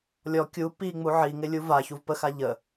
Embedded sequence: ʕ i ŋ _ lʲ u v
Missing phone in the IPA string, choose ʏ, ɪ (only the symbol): ɪ